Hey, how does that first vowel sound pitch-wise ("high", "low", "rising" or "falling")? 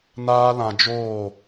high